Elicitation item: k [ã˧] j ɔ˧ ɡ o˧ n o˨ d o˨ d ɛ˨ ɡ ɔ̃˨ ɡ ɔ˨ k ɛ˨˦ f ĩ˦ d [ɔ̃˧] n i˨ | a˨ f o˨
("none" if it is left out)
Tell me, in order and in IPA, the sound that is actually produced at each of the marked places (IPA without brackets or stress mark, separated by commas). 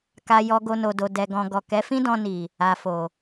a˧, ɔ̃˧